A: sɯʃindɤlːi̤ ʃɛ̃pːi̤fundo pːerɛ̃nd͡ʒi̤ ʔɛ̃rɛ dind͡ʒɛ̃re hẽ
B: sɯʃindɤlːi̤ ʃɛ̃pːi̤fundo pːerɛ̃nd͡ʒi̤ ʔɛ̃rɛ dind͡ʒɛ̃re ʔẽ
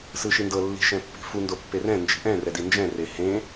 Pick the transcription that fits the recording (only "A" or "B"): A